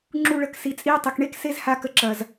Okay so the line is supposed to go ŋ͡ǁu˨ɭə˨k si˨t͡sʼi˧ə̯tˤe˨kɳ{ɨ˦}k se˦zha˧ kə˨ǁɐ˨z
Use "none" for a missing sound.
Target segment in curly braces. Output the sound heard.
e˦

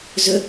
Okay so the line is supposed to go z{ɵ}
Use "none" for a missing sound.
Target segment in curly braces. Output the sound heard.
ɵ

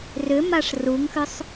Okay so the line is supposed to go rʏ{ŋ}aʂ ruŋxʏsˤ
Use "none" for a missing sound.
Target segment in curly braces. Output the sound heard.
m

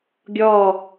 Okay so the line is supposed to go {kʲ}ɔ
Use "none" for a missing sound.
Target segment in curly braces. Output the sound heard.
ɡʲ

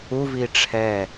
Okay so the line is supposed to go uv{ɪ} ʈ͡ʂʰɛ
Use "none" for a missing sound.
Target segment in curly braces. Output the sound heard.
i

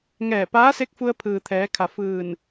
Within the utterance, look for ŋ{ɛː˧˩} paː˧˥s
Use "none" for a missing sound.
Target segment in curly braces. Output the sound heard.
ɛː˧˩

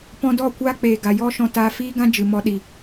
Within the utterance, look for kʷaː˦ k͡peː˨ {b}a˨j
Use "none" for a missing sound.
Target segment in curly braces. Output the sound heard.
ɡ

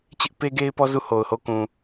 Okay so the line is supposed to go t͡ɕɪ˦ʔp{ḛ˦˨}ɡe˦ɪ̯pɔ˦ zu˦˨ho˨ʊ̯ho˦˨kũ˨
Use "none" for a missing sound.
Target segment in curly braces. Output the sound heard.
e˦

